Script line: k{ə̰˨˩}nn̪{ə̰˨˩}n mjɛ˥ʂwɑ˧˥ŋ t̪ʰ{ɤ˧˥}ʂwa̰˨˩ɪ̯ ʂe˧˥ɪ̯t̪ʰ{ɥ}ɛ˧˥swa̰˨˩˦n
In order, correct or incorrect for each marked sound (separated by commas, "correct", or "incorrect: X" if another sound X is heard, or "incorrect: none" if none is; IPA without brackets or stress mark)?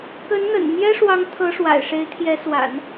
incorrect: ə˧˥, correct, correct, incorrect: j